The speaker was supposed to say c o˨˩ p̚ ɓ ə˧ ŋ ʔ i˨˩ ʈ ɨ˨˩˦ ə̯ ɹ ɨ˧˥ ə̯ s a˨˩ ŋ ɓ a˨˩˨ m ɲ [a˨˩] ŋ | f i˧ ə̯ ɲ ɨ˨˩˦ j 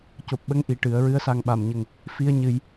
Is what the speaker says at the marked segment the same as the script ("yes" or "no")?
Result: no